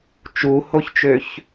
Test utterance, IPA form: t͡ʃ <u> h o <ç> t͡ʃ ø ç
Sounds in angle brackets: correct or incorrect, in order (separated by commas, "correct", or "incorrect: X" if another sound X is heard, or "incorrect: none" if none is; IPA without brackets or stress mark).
correct, correct